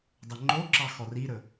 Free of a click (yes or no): no